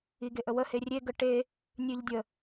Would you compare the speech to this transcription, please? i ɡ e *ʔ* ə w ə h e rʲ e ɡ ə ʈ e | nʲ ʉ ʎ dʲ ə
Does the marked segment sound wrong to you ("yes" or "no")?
no